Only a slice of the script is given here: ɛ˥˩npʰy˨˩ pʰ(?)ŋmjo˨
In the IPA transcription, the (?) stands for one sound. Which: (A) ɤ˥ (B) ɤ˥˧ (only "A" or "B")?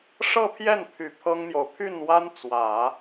A